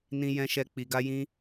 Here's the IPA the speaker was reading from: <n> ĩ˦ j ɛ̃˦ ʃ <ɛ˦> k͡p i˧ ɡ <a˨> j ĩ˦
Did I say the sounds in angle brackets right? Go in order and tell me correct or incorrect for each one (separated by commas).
correct, correct, incorrect